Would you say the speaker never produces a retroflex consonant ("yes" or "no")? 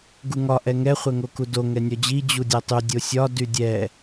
yes